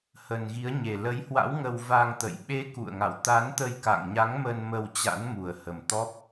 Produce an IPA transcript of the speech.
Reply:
hə˨˩nɣi˨˦ə̯ɲe˨˩ lə˨˦jhwa̰˧˥w ŋə˧wva˧ŋt̪ə̰˧˨j ɓe˨˦ kṵ˧˨ə̯ŋa̰˧˨w t̪a˨˦nt̪ə˧jka̰˧˨ŋɲa˨˦ŋ mə˧n mə˧wt͡ɕa̰˧˥nmu˨˩ə̯hə˨˩m t̪ɔ˦˥p̚

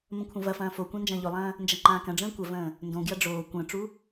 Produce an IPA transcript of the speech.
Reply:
mə̃kʷʰɐ̃vɐfɐ̃ː fokʷã nd͡ʒɐ̃ːʎolˠɐ̃ː | nd͡ʒɐŋ͡ǃãːkɐ̃ɖ͡ʐə̃ː kʷɐvə̃ː | ndõɡjɐ ɖ͡ʐoː kʷə̃ːʈ͡ʂu

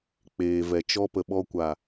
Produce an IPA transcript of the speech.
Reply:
k͡peː˨vɛ˨t͡ʃɔ˦ pə˨ɓɔ˧kʷa˨

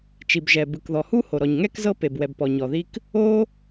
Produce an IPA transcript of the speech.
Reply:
t͡ʃi˩bʒɛ˩ bɯ˩kðɔ˩hu˥ ho˩ɾɔ˩ɲŋɛ˥k zɤ˥pe˩bwɛ˩b pɔ˩ɲɔ˩ði˥k | o˥

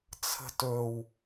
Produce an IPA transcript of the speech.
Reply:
t͡sʰə̤tɵw

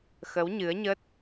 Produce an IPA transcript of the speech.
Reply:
xə˨˦wɲɨ˨˦ə̯ɲə˦˥t̚

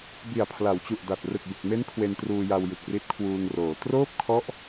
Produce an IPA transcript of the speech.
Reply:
bi˨˩a̯pʰla˩˦wt͡ɕu˨˩ʔ da˨˩t̚ rɯ˨˩k̚bɯ˨˩k̚me˦˥n kʰwe˧ntruː˧ja˧w jɯ˨˩k̚ri˦˥t̚kʰwuː˧ŋroː˩˦ troː˥˩p̚kʰɔ˦˥ʔ

